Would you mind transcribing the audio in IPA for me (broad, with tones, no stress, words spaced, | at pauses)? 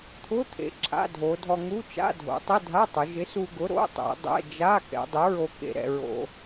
t̪ʰʊ˧˥˧t̪ʰḛ˩˧ ǁʰa̰˧˥˧dʱo˩˧dʱɔ˧ ŋu˧˥˧t͡ʃa̰˧˥˧dʱo̰˩˧ tˤɪ˧˥˧dʱa˧˥˧tˤʊ˩˧ ʒɪ˨˥su˧ɡʊ˨˥ ɾo̰˧˥˧tˤɛ̰˩˧ dˤɛ̰˧˥˧ d͡ʒa˧˥˧ kɛ̰˩˧dˤʊ˨˥ɹo˧ kḛ˧ɾɛ̰˧ɹo̰˧